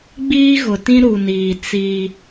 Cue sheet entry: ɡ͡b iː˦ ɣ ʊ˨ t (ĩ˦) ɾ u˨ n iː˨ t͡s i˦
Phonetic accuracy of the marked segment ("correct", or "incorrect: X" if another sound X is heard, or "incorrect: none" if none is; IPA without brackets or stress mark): correct